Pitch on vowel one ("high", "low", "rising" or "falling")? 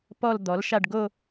falling